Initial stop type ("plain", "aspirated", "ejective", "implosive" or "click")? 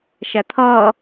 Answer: aspirated